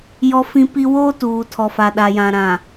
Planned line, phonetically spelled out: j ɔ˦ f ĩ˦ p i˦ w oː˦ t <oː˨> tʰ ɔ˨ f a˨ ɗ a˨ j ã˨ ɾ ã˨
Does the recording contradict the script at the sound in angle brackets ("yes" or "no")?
yes